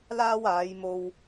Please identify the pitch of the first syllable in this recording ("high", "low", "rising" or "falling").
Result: high